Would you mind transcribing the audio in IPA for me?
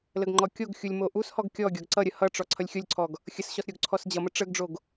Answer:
l ə ɡ ŋ͡ǃ ɔ kʲ o ɡ xʲ u lʲ m o ʔ u s h ɔ ɡ kʲ ɔ ɡʲ ɔ ɡ ǀ ʌ ɾʲ ə h ʌ ʈ͡ʂ ɔ ǀʰ ʌ lʲ xʲ o lʲ ǀʰ ɔ ɡ | xʲ ə s ɕ ɔ s ɾʲ o ɡ ǀʰ ɔ s d͡ʑ ʌ m ə ʈ͡ʂ ə ɡ ɖ͡ʐ o ɡ

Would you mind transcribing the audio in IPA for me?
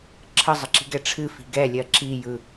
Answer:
ǁʰ ə zˤ ə ǁ i̤ ɡ ɛ ʈ͡ʂʰ ɨ f i̤ ɡ ɛ lʲ ɜ ǁ i j ɯ

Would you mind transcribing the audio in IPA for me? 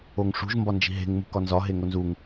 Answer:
o ŋ ʂ ṳ ʒ m b ɒ n d͡ʒ i̤ ɦ e̤ ŋ m ṳ k ɒ n z ɒ ɦ e ŋ o n z u ŋ

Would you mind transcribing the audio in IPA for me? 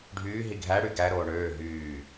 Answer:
ɖʱ yː ɦ i ɡʱ æ ɽ y ɡ æ ɾ oː ɳ øː ɦ yː

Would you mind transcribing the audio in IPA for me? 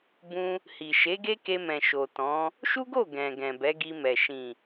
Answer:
b ũ˧ | h i˨ ʃ e˨˦ ɡ e˦ k e˧ m ɛ̃˨ ʃ o˨ t ɔ̃˨˦ | ʃ u˦ ɡ o˦˨ ɡ ɛ̃˨ ɡ ɛ̃˨ b ɛ˨˦ ɡ i˧ m ɛ˨ ʃ ĩ˨

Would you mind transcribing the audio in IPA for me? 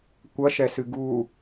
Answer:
kʷ ɐ ʃ ɛ s ɨ ɡ u

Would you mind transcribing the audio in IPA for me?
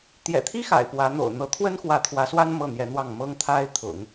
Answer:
t̪ j ɛ̰˨˩ t̪ʰ i˥ x a̰˨˩ ɪ̯ p w ä˧˥ n̪ o̰˨˩ ʊ̯ n̪ ɤ˧˥ t̪ʰ w ə˥ n x w ä˧˥ t̪ʰ w ä˧˥ s w a˥ n m ɤ˥˩ n̪ j ɛ˧˥ n̪ w ɑ˥˩ ŋ m ɤ˥ ŋ t̪ʰ a˥ ɪ̯ t̪ʰ ʊ̰˨˩˦ ŋ

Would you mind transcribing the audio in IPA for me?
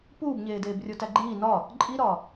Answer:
p uː b ɲ eː d eː b rʲ o t æ ɡ͡ǃ iː n ɒ | ǃʼ i ɾ ɒ

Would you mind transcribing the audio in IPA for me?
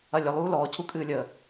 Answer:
ɐ lʲ ə lˠ uː l ɔː cʰ u kʼ ɨː lʲ əː

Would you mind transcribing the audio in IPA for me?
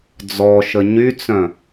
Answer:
d͡z ɔ ʃ ə ɲ y t͡s œ̃

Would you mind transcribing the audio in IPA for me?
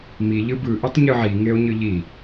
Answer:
m i ʎ ɯ b ɯ ʔ i tˤ ɲ ɯ ʕ i ŋ e o̯ ɲ ɯ ʎ i

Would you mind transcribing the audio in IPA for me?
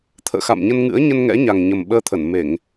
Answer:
t̪ʰ ə̰ː˧˨ x a̰˧˨ m ɲ ə˧ n ŋ ɨ̰˧˥ ə̯ ɲ ə˧ n ŋ ɛ̰˧˥ ɲ a˨˩ ŋ ɲ ə˨˩ m ɓ əː˧ t̪ʰ ə˧˩ n m e˧˩˨ ŋ

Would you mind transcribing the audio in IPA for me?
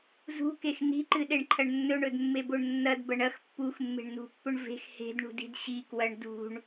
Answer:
z ṳ k e x n i̤ ǃ ɨ ɗ e ɳ ǃʰ ɐ ɳ nː ɵ ɳ ɵ d mː e b o ɳ nː ɐ d b ɐ ɳ ɐ x pː u x mː e̤ ɳ n ṳ pː ɵ ɳ v e̤ x h e̤ d ɳ ṳ d i̤ d ɕ i k w ɐ ɳ d ṳ ɳ

